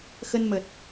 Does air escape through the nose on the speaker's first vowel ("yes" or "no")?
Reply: no